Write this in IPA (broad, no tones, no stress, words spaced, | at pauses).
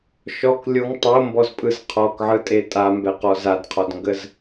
ʃɔk lʲoŋ tˤombɔzpʼɯz qʰɔkʕɯtʼe tʼambɛqɔ zadqʰɔdŋɡəz